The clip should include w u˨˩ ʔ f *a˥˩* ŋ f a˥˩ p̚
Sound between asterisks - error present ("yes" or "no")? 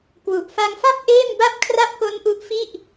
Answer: yes